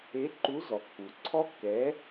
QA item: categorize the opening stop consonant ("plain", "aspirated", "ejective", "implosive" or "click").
click